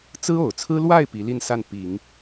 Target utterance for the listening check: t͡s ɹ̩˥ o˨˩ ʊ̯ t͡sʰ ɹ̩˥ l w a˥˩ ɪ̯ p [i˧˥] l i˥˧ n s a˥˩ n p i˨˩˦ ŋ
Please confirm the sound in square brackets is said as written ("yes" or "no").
yes